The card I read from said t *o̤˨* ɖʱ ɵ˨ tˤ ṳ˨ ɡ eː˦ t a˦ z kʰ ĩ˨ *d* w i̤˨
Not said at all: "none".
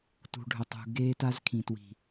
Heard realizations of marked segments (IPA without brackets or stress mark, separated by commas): ṳ˨, t